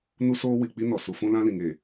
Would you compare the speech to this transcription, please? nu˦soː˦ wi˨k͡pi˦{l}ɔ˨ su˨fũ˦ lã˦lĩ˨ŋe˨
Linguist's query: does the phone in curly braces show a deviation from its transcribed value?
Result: yes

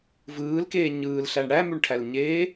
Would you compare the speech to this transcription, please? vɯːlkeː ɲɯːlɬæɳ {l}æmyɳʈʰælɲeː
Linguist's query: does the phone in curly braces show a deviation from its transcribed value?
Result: yes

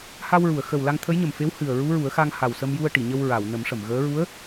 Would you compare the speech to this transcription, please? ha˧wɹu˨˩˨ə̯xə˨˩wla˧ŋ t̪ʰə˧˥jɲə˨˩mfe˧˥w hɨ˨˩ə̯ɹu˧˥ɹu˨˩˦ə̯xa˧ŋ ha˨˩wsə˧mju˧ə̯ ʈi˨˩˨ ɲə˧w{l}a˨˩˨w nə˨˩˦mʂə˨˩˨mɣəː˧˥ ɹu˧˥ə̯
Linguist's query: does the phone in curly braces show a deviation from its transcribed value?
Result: yes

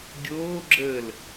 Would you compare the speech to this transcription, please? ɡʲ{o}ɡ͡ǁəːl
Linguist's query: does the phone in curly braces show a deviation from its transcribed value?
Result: yes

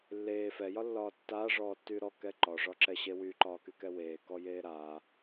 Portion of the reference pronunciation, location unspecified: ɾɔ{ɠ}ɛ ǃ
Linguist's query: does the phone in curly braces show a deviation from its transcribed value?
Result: yes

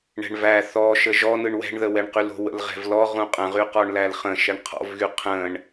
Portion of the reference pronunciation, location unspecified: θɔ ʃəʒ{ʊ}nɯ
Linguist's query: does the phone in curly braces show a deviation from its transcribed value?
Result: yes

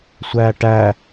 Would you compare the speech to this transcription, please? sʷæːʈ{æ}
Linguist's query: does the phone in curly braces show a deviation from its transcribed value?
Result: no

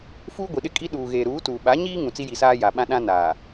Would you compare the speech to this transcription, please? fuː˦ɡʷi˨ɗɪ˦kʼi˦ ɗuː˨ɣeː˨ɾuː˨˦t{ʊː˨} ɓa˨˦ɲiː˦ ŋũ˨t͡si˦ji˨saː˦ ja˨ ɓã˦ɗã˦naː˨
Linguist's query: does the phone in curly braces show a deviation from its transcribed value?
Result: yes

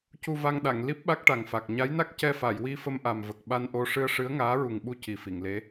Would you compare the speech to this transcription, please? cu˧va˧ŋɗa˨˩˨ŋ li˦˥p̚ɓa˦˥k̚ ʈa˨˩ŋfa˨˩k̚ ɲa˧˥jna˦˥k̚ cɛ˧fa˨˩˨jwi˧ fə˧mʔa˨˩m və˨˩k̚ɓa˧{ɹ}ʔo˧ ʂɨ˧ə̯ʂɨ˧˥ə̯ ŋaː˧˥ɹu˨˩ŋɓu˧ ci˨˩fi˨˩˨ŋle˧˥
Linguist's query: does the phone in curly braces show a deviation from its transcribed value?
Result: yes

